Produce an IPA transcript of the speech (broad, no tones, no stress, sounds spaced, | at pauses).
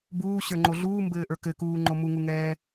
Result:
b uː ɕ ə˞ ŋ͡ǃ o ɮ uː m b ɘː ʔ ə˞ k ɘ k uː ŋ͡ǃ o m u ŋ u ŋ ɛː